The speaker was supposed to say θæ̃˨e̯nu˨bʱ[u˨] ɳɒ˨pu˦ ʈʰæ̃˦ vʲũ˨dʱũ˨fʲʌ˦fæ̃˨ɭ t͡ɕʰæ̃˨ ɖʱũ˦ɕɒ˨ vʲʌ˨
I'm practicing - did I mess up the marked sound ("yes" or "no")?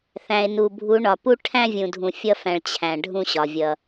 yes